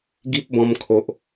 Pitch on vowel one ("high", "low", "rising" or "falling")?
high